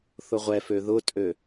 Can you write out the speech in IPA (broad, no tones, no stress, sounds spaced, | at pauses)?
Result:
θ ʊ ʁʷ ɛ f ø ð ʊ tʼ ø